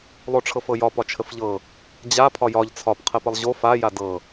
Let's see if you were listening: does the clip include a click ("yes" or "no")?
no